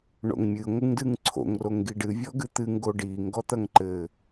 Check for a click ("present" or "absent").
present